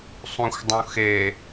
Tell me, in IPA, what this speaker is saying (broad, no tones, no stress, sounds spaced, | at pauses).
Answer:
sˤ ũ xʷ dˤ ũ x e